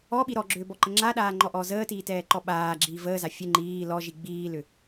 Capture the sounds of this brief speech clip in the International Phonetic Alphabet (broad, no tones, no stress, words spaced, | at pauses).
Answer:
ɔɓi ɾɔɡ͡ǁʏːbɔǃə ŋ͡ǁaɗaːŋ͡ǃɔʔɔː zəːtiːtɛːǃɔ ɓaːɡ͡ǁiː vəːza fʲə ŋ͡ǃiː lɔʒi ɡ͡biːlʏ